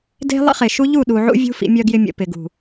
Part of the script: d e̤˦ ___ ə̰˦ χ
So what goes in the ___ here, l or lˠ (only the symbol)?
lˠ